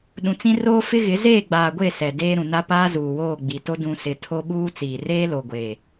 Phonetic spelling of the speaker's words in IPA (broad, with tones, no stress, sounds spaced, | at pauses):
ɗ ũ˨ t͡s ĩ˦ r oː˦ f ɪ˦ ɣ ɪ˨˦ z eː˦˨ ɡ͡b aː˨ ɡʷ e˦˨ s ɛ˨ d eː˦ ɾ ũ˨ n a˦ p aː˦ z uː˨ w oː˦˨ ɡ͡b i˨ t o˦ d ũ˨ s ɪ˨ tʰ o˦ ɓ uː˦ t͡s iː˨ r eː˦ l o˨ ɡʷ e˨